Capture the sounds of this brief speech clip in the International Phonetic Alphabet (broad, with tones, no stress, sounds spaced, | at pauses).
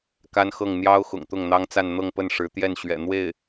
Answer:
k a˥ n x ɤ˥˩ ŋ n̪ j ɑ˥ ʊ̯ x ʊ̰˨˩ ŋ t̪ ʊ˥˩ ŋ n̪ ɑ˥ ŋ t͡s a˥˧ n n̪ ɤ˥˧ ŋ p ə˥˩ n ʂ ɻ̩˧˥ t̪ j ɛ˥˩ n ɕ ɥ ɛ̰˨˩ n̪ w e˥˩ ɪ̯